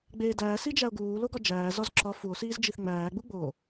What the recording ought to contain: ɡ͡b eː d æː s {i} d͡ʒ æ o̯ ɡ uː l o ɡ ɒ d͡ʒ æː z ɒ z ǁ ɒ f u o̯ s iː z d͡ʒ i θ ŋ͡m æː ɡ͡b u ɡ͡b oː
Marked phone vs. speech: correct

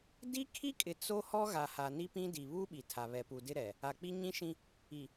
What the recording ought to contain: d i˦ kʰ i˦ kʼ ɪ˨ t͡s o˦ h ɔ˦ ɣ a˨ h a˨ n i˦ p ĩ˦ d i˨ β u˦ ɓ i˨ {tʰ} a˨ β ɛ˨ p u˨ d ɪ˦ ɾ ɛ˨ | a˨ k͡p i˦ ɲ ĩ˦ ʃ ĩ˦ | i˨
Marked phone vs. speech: correct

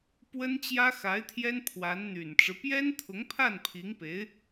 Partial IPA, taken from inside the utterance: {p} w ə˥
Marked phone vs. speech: correct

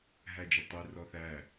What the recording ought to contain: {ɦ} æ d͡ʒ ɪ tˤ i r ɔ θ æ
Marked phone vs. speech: correct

